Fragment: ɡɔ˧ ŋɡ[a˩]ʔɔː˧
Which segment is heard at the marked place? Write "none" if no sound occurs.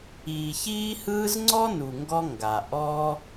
a˩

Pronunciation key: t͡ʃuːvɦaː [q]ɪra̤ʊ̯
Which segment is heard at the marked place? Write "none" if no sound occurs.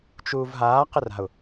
q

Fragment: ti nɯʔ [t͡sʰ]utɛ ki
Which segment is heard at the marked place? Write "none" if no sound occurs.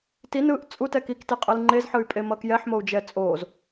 t͡sʼ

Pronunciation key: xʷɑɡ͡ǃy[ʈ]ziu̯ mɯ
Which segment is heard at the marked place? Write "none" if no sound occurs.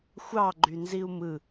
n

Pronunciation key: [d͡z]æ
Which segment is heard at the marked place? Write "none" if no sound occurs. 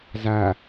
z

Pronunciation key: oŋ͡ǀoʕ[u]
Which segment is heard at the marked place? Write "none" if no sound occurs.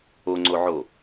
o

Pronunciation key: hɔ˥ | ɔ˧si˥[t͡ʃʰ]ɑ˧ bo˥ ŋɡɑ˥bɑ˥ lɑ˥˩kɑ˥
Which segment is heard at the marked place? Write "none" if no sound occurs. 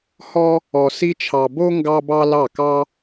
t͡ʃʰ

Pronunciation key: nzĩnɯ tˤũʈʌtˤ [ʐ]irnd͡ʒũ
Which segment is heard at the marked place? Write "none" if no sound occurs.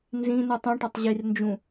ʑ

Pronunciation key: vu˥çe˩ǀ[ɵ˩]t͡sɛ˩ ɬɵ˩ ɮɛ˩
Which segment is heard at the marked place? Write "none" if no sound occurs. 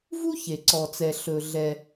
ɔ˩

